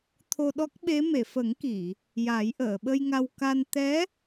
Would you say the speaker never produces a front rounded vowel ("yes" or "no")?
yes